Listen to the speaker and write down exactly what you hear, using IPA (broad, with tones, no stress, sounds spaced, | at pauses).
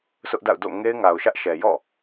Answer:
s ʊ˦ ʔ d a̰˦˨ ʊ̯ d o̰˦˨ ŋ e˦ ɪ̯ ŋ a˨ ʊ̯ ʃ ä˦ ʔ ʃ ɛ˨ j ɔ̰˦˨